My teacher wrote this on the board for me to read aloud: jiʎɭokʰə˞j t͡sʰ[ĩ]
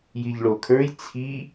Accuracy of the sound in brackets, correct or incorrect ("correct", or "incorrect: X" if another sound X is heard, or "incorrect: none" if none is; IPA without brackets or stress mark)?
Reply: incorrect: i